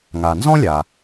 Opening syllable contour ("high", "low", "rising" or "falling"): low